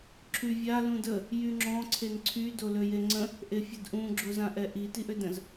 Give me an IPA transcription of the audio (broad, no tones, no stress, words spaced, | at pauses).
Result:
ǁʰyvʲa lũdə | jyŋ͡ǁɔ̃ ǀʰenǀʰy doløjeŋ͡ǀə̃ | ʔefʲədʔũ ɡ͡ǁozãʔɛʔi tiʔødə̃z